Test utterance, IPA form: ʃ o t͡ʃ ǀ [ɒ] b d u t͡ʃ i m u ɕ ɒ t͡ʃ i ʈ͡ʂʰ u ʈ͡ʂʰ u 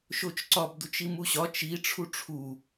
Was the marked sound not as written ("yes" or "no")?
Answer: no